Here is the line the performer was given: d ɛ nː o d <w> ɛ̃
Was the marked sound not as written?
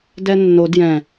yes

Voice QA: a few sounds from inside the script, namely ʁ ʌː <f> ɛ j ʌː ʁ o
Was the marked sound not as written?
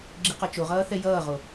yes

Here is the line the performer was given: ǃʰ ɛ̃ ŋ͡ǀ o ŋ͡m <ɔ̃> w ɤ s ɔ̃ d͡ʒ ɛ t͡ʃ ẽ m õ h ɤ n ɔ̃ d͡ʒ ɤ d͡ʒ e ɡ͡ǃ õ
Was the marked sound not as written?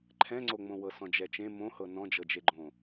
yes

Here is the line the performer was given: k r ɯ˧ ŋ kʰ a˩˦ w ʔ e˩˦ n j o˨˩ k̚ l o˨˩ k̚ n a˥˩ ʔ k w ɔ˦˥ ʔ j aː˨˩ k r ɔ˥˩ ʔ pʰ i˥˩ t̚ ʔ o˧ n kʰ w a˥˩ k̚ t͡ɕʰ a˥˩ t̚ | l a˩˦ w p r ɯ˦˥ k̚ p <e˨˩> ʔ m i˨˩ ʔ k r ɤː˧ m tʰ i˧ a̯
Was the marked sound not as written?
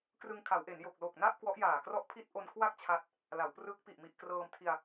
yes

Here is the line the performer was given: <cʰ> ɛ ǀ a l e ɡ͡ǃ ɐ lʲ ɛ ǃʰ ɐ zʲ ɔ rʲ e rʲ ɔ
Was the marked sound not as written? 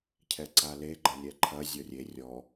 no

